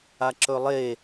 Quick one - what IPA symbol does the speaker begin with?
a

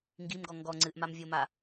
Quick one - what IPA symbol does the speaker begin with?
ŋ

